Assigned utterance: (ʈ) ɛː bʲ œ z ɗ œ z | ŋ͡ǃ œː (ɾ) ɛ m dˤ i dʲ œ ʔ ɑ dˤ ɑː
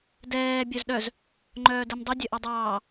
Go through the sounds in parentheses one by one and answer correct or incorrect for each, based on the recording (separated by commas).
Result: incorrect, incorrect